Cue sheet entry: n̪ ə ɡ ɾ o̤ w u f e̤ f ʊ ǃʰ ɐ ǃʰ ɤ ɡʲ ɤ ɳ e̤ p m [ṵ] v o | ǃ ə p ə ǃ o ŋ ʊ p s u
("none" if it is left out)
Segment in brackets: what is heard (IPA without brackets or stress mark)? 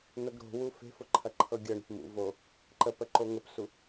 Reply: ṵ